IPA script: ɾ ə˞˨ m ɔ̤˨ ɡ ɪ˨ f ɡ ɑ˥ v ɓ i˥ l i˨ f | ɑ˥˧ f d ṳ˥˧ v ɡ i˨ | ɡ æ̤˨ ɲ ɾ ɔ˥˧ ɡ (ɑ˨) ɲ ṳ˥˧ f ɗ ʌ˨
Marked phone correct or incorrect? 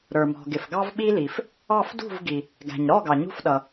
correct